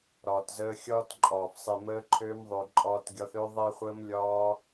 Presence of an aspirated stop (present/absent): present